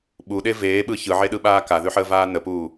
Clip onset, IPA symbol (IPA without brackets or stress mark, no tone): ɓ